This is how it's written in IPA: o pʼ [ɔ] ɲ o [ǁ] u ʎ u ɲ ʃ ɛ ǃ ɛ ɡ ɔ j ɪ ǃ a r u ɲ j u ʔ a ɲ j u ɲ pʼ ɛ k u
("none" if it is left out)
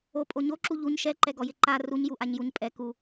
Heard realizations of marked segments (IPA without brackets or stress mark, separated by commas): o, ǁ